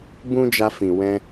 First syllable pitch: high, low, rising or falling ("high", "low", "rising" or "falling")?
high